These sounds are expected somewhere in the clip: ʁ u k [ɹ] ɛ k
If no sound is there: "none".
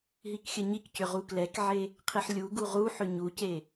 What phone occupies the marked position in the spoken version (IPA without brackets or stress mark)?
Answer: l